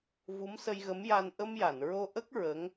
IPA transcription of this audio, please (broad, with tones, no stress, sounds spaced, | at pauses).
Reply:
v u˧˥ m s ə˧ j ɣ ə˧˥ m j a˧ n ʔ ə˧ m j a˨˩˨ n ɹ o˧ ʔ ə˦˥ k̚ ɹ ə˧˥ ŋ